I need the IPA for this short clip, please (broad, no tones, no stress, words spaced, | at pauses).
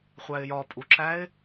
χʷæɪ̯jɒ pʼuǁæɪ̯